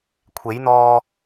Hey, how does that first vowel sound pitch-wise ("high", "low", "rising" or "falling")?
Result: rising